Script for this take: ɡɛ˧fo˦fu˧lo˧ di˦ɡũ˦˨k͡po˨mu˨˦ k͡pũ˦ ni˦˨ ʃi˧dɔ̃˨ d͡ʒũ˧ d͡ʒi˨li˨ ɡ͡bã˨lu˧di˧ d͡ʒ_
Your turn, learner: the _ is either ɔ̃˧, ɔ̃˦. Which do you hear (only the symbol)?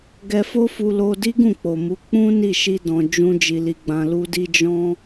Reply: ɔ̃˦